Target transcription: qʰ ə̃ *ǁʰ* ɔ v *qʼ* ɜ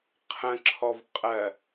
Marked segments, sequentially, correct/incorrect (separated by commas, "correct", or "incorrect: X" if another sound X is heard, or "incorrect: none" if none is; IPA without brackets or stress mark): correct, correct